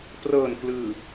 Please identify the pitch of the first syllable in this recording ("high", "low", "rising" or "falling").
low